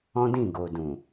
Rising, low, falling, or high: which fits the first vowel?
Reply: high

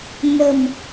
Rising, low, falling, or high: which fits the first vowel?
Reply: low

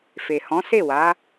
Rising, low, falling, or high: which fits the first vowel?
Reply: low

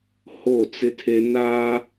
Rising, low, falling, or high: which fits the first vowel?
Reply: falling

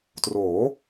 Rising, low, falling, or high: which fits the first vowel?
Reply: rising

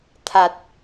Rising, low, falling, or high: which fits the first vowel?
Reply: low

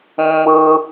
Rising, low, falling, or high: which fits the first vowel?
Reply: high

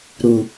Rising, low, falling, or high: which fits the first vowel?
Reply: low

